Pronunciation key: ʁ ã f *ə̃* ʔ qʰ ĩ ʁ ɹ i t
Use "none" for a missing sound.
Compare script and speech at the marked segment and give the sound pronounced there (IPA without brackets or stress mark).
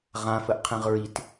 ə